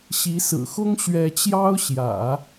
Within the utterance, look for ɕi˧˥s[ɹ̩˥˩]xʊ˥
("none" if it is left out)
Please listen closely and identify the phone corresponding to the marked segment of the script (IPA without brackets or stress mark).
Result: ɹ̩˨˩